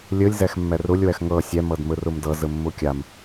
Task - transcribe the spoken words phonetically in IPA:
lʲɯlʲ zɛxmːɛrulʲ wɛxŋɤ sʲɛ mɤdmɯrumdɤ zɯmːukʲam

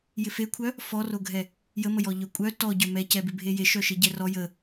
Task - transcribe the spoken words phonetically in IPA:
jɪfekʷʰœ | fɔroɡʱɛ | jəməjɔ ʎœkʷʼœ tɔɟœ mɛcɛbɪbʱe jeʃœ ʃeɟɛrɔ jə

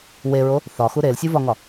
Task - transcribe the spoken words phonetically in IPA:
weɹo | θɒxu ɾelsʲuvɒŋɒ

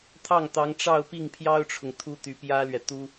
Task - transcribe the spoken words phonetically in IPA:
t̪ʰɑ˥˩ŋ t̪ɑ˧˥ŋ ʈ͡ʂɑ˥˧ʊ̯pi˥˩ŋpʰjɑ˥ʊ̯ʈ͡ʂʰʊ˨ŋ t̪ʰu˥t̪y˧˥ pjä˥lɥɛ˨ t̪u˥

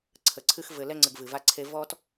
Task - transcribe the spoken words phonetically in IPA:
ǀʰə˨ǀʰɨ˧x vɘ˨ lɛ˧ŋ͡ǀɘ˨ɡ vɨ˨va˧ǀʰe˧ vɔ˧t

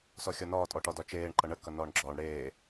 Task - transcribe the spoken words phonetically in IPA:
sɔxʲɒnɒː tʼɔʈɒdɒt͡ʃeːɳ ǃʌɳə kʌnɒːɳɡ͡ǁɒːɳ ɽeː

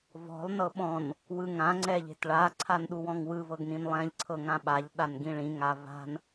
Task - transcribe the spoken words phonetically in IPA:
vɔ̤lˠ nɤɓɔ̃n | wɯŋã ŋ͡ǀɛʎe̤tɭa ǀʰanɗuwɔ̃ŋwɯ vɤɡnĩnlˠɛ̃ʎ ǀʰɤŋãɓaʎ ɗanɡĩɭĩ ŋava̤n

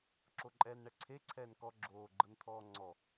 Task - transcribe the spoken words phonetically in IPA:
ǁoǃʼɛːnɳɛǀʰe ǀʰɛːnkɔ ɡ͡ǁoːɡ͡ǃɤn t̪ʰɔːŋ͡ǀɔ

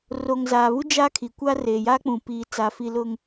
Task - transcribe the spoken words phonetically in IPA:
ro˨ŋzaː˨βu˦ d͡ʒaː˦kʰi˨kʷa˦ reː˨jaː˦k͡pũ˨ piː˨ t͡sa˨fi˨lʊ˨ŋ

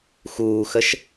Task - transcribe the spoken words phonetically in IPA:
xuːxəʃ

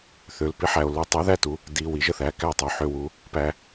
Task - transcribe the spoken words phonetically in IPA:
θø˨lpi˨˥ħæ˨o̯ lu˨˥tˤu˨˥ðæ˥˨tu˨˥ | di˨ wi˨˥ʒə˨θæ˦ kæ˥˨tˤʉ˨ħø˥˨wu˦ | pæ˦

